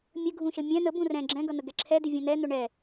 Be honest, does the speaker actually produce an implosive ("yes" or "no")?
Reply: no